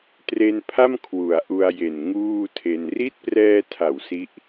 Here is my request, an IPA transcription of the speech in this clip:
t r e˧ n pʰ a˥˩ m kʰ w u˨˩ a̯ ʔ u˧ a̯ j e˨˩ n ŋ uː˥˩ tʰ e˧ n r i˦˥ t̚ p r ɛː˧ tʰ a˩˦ w s i˦˥ ʔ

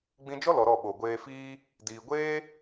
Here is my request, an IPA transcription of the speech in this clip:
ɡ͡b ĩ˧ d͡ʒ ɔ˦ l ɔ˨ ɾ ɔ˦˨ ɓ o˨ ɡʷ eː˧ f iː˦ | d iː˨ ɡʷ eː˦

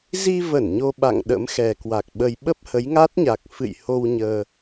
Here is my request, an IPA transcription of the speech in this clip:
z i˧ v ə˧˩ n ɲ o˧ ɓ a̰˧˨ ŋ ɗ ə̰˧˥ m x ɛ˨˩ k w a˨˩ k̚ ɓ ə˧ j ɓ ə˦˥ p̚ h ə˨˦ j ŋ a˦˥ t̚ ɲ a˨˩ k̚ f ɨ̰˧˨ j h o˧ w ɲ əː˧

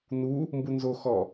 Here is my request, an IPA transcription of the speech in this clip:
n u | m b u n z o x ɔ

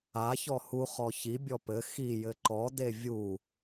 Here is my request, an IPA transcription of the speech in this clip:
a ç ɔ h u χ ɔ ç i bʲ ɔ p ɘ x i j ɘ ǃ ɔ d e vʲ u

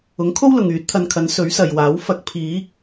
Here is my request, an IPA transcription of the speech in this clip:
ʊ˨˥ ŋ kʰ o˥ w l ʊ˨ ŋ yː˨˥ t̚ t̪ʰ ɐ˧ n kʰ ɐ˨˥ n s ɵ˨˥ ɥ s ɐ˨ j w aː˨˥ w f ɐ˧ k̚ pʰ iː˨˥ k̚

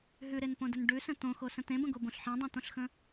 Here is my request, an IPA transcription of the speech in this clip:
ɦ ʉ ɾ e n p õ d ə n ɖ ʉ s ə̃ t̪ õ x o s ə̃ t̪ ẽ b ə̃ ɡ o b õ ɬ ħ ẽ dˤ ẽ t̪ õ ɬ x ə̃

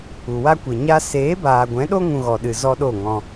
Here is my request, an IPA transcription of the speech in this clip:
u˨ w a˦ kʷ e˨ ɲ a˦ s eː˨˦ b aː˨ ɡʷ ɛ̃˨˦ ɗ o˦ ŋ ũ˧ ɣ ɔ˨ ɗ ɨ˨ z ɔ˦ ɗ o˦˨ ŋ ɔ̃˧

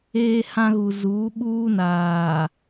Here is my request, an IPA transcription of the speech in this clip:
eː˦ h ã˦ ɣ u˨ z uː˨˦ ɓ uː˦ n aː˨

